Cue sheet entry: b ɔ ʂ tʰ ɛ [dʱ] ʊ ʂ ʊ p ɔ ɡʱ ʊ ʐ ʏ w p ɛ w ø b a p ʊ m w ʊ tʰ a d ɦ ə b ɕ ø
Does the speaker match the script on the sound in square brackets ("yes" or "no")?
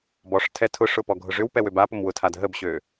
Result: no